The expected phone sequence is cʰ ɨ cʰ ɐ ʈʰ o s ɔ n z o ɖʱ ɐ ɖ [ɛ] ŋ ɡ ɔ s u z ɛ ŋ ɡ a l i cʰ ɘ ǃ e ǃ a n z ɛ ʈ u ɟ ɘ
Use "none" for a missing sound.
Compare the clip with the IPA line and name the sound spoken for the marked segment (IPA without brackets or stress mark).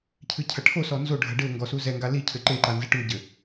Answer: ɘ